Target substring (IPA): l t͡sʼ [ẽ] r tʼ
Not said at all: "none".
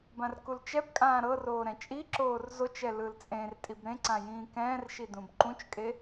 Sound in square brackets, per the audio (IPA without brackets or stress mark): ẽ